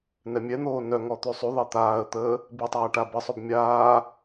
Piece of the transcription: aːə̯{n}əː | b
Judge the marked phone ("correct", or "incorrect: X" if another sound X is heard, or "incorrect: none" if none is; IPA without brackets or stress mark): incorrect: t̪